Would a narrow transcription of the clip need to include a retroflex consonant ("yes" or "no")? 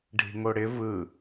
yes